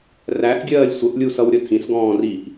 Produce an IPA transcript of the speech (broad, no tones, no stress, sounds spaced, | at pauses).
r æ ʔ ɡʲ ɜː lʲ sʷ ə ʔ lʲ u s ʌ w ɾʲ ʌ tʰ ĩ s ɡ ɔ̃ː r i ʔ